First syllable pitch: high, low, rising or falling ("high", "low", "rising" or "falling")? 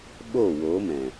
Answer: falling